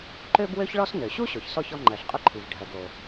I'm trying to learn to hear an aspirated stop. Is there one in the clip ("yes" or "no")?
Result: yes